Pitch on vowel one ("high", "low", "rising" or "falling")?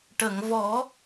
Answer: low